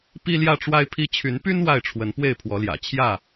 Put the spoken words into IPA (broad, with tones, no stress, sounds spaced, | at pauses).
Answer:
p i˦ l j ä˥˨ ʈ͡ʂ w a˦ ɪ̯ pʰ i˦ t͡ɕʰ y˨˦ n p y˦ n w a˥˨ ɪ̯ ʈ͡ʂʰ w ə˨˦ n p w e˥˨ ɪ̯ pʰ w ɔ˨˦ l j ä̰˨˩ t͡ɕʰ j ä˥˨